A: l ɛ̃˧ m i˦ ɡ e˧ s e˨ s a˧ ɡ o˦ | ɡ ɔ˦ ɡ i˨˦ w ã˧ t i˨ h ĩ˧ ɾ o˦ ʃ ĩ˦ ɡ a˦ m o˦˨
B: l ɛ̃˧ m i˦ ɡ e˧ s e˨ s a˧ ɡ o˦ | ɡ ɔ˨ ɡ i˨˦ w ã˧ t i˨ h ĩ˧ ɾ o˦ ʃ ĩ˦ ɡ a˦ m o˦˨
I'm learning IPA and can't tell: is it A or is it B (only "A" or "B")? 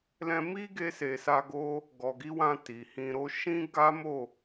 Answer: B